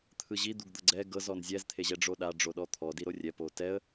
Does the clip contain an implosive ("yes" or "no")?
yes